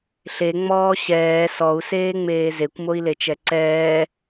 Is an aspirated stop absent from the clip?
yes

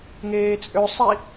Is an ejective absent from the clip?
no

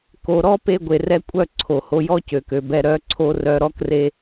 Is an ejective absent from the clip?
no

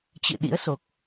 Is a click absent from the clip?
yes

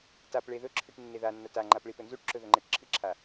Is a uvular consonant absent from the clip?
yes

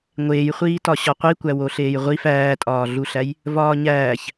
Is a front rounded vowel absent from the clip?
yes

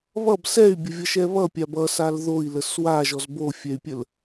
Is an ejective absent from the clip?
yes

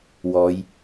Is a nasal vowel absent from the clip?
yes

